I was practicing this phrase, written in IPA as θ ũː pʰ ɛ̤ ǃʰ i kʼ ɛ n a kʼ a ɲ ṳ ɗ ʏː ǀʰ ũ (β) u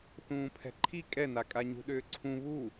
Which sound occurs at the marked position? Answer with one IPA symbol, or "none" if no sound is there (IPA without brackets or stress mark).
β